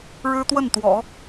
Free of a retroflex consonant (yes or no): no